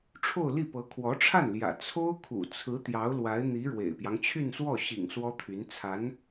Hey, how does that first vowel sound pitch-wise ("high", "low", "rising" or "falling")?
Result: falling